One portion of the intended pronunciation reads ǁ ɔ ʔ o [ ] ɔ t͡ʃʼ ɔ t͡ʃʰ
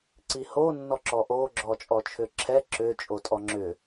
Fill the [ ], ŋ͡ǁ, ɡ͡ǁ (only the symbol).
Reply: ɡ͡ǁ